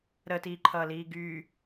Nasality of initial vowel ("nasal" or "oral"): oral